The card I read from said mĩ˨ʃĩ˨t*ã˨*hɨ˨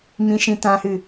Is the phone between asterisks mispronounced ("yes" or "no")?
no